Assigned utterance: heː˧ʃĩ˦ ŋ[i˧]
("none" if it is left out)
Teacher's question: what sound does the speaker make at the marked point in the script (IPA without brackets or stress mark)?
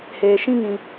ĩ˧